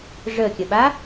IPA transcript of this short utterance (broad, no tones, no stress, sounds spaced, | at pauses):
ʐ ə kʲ ə ɓ a